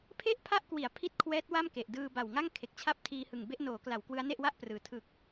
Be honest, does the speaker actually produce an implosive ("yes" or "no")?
no